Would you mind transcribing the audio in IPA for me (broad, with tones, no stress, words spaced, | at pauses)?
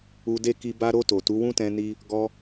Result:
u˧de˦ki˧ ba˧ɾo˧ to˨tu˨˦wũ˦tɛ̃˧ ni˧ | ɡɔ˧